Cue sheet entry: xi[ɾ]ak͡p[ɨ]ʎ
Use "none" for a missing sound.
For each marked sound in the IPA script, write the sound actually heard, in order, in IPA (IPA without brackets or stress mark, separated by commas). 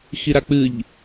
ɾ, ɨ